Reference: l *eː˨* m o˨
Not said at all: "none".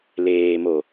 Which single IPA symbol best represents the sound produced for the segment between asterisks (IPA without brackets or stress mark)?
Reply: eː˨